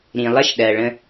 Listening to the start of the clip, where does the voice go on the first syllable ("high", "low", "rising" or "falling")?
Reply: low